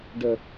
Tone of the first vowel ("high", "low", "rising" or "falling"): low